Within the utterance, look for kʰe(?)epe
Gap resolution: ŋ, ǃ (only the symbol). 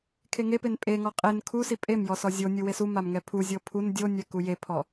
ŋ